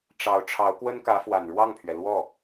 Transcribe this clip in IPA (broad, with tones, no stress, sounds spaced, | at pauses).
ʈ͡ʂ ɑ˧˥ ʊ̯ ʈ͡ʂʰ ɑ˧˥ ʊ̯ k w ə˥ n k ä˧˥ f w a˨˩ n ɻ w ɑ˥˩ ŋ pʰ ɥ ɛ˩ l w ɔ˥˩